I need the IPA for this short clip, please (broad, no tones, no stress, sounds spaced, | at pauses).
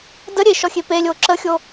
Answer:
d ə ɾʲ e ʃ ɔ xʲ e p e lʲ o ǁ ə xʲ o